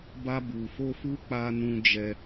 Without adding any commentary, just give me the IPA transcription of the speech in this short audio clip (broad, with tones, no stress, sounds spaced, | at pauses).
b a˦ b u˧ f o˦ f u˦ k͡p a˦ n ũ˦ d͡ʒ ɛ˦